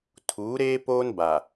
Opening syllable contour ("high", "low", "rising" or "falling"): rising